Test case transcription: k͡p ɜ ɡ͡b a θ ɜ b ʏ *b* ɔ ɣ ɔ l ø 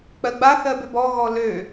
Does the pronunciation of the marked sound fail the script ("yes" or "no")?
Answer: no